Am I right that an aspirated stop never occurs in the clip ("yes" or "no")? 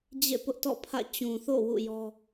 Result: no